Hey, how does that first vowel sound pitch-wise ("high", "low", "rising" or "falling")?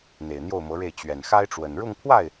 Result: low